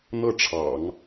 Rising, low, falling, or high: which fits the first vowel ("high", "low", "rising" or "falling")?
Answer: falling